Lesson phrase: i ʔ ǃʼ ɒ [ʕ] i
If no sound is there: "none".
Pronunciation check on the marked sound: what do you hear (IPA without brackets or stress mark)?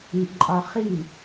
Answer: χ